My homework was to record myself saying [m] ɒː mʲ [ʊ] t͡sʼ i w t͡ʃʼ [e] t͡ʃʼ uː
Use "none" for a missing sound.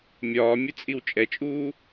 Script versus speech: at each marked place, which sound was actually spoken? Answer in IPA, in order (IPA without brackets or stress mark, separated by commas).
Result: mʲ, ʊ, ɛ